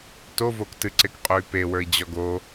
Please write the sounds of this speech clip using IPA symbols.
t o v o k t ɨ ǀ e k qʼ o y̯ p e w ə˞ i̯ d͡ʑ ɔ ɡ o

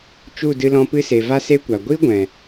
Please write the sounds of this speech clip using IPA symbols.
t͡ʃ u˦˨ d ɨ˧ l ɔ̃˧ p ɨ˧ s e˨ v a˦ s e˦ kʷ a˨ ɡʷ i˦ ɡʷ ɛ̃˨

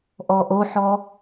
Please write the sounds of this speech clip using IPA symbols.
ʔ ɔ ʔ o ħ ɔ

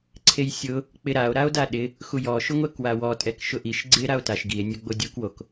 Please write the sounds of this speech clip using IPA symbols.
ǀʰ e j sʲ ʊ | k͡p ɪ ɾ a o̯ ɾ a o̯ d a ɗ ɪ | x u j ɔ ʃ ʊ ŋʷ ɛ k w a w ɔ tʼ ɛ k ʃ ʊ ʔ i ʃ ɡ͡ǀ ɪ ɾ a o̯ t a ʃ ɡ i e̯ nʲ ʊ ɡ͡b o dʲ u k w o k

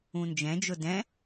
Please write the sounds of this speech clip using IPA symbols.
ũ n d͡ʒ ɛ̃ d͡ʒ ʊ d ɛ̃

